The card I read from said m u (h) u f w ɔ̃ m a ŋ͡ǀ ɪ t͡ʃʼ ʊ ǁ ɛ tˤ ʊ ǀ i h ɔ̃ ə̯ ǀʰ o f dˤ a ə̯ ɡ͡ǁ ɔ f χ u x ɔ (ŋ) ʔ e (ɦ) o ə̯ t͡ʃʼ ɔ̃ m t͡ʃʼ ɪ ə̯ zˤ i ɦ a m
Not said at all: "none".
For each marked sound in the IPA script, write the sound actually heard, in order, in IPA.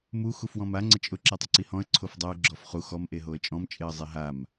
x, m, ɦ

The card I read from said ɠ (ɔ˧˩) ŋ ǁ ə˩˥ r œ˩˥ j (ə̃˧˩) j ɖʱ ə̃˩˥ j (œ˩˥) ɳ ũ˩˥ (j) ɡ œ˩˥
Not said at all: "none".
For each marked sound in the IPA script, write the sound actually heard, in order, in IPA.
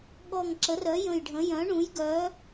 ɔ˧˩, ə̃˧˩, œ̃˩˥, j

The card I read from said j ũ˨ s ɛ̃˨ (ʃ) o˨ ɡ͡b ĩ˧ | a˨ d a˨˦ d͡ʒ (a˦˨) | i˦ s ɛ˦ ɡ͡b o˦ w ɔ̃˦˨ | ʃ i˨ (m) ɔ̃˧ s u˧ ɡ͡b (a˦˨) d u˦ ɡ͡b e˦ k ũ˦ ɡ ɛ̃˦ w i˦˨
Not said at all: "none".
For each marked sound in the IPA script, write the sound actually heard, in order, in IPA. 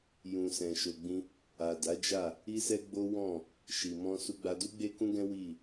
ʃ, a˦˨, m, a˧

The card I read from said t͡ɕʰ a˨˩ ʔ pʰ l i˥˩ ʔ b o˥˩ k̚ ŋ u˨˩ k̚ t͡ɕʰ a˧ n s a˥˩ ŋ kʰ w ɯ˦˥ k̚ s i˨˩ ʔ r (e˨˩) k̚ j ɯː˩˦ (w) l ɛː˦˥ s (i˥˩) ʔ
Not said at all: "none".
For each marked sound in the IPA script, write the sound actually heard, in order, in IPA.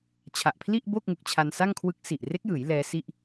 e˦˥, j, i˥˩

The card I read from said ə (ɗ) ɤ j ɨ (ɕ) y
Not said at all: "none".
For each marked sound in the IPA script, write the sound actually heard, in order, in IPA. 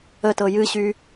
t, ɕ

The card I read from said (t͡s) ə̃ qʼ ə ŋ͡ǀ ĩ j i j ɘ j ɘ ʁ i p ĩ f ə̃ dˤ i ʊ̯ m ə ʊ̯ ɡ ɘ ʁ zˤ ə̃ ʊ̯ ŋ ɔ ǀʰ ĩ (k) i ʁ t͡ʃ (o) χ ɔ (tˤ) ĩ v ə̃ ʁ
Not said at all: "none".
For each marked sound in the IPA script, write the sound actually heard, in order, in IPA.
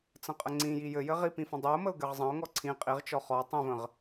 t͡s, qʼ, ɔ, tˤ

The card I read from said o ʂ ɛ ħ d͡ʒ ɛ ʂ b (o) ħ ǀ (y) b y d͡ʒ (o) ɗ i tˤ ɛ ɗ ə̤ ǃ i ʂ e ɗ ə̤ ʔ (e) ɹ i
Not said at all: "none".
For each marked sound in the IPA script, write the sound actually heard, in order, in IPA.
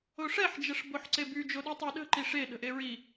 o, e, o, e

